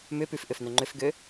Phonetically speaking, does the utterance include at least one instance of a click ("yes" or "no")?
yes